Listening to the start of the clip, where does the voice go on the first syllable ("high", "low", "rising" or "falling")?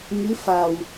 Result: rising